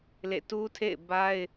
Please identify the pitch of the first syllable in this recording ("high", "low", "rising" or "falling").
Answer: falling